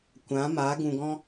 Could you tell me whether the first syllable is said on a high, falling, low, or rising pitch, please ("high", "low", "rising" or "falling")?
rising